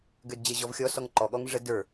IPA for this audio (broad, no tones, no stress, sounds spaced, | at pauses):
ɡ ø d d͡ʑ ə ʑ ɔ v xʲ ɔ s ɔ ŋ ǃ ɔ ɠ ɔ ŋ ʐ ə d ə˞